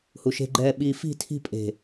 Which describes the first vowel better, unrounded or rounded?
rounded